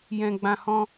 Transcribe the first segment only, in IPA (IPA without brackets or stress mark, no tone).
j